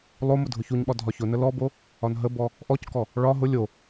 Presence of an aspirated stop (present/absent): absent